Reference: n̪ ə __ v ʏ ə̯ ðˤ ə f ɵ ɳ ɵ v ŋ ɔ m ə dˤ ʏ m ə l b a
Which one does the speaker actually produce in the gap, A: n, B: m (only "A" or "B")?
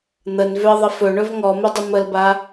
A